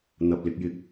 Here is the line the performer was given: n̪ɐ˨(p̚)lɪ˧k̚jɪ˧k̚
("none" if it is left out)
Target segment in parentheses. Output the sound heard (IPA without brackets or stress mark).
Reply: p̚